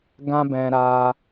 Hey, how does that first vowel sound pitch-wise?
high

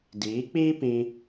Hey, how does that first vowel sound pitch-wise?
rising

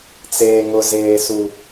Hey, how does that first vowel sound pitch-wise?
high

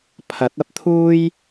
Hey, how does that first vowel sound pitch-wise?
rising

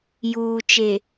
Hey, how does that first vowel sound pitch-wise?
low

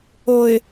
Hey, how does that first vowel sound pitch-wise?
low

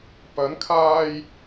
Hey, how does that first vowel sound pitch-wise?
rising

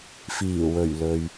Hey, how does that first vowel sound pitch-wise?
low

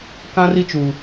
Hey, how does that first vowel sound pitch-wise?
high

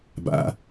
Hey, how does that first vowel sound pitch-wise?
low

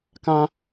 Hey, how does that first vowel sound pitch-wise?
high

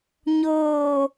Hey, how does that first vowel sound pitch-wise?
low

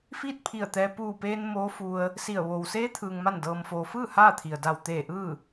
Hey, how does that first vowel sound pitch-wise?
falling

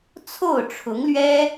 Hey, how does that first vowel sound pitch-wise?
falling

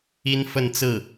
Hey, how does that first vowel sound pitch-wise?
high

